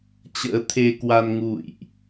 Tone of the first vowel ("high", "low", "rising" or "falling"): rising